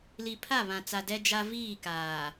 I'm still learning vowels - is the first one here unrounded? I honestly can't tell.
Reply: yes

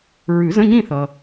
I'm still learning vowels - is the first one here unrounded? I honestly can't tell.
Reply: no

